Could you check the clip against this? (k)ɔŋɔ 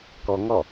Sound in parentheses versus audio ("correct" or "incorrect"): correct